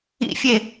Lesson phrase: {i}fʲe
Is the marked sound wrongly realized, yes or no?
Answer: yes